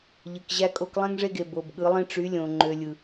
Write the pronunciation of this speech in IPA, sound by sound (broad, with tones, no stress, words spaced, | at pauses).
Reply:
ʎɯ˨kʑæ˦kʼo˦k lˠẽ˦ŋʐe˦ɡe˨ bo˨bɠɯ˨˦lˠĩ˦ ʈ͡ʂy˨˦lʲõ˨ ŋ͡ǃø˨lʲɯ˨